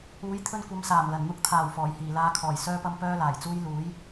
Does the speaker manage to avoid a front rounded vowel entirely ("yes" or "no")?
no